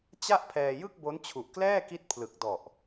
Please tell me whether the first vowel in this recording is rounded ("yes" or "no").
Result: no